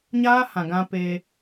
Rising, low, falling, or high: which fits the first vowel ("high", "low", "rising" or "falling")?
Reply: high